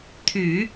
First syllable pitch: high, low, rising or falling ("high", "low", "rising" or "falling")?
low